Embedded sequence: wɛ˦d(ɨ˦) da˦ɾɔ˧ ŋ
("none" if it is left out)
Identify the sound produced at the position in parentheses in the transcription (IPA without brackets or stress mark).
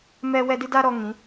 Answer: ɨ˦